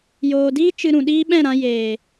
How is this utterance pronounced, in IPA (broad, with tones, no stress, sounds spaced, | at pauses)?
j oː˨ d iː˦ t͡ʃ ɨ˧ ɾ ũ˨ ɗ iː˦ ɓ ɛ̃˦˨ ɾ ã˧ j eː˨